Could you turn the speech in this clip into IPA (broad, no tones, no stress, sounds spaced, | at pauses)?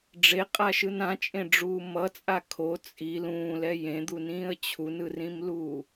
ɖ͡ʐ e qʼ a ʃ ɯ n ã t͡ʃʼ ẽ ɖ͡ʐ uː m ʌ t͡sʼ a kʰ o t͡sʼ i l ũː l ɛ j ẽ d̪ u n ĩː ə̯ t͡ɕʰ u n ɯ r ĩ m l uː